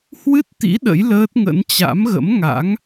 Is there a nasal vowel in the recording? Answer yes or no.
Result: no